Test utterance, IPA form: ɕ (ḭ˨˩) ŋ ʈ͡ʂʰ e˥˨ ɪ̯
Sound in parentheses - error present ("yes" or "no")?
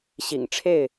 no